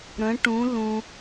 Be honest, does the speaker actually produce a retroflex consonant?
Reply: yes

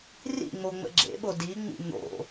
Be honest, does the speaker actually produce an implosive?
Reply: yes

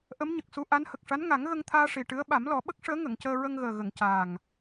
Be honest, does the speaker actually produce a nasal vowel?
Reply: no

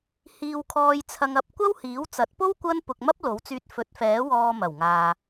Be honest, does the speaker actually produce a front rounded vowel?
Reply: yes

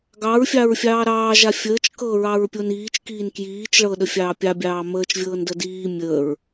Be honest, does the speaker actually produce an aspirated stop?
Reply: no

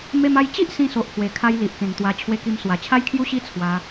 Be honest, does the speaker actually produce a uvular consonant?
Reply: no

